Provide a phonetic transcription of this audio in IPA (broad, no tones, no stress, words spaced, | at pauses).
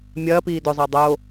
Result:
mʲɐːpiː dɵzˤa dˤo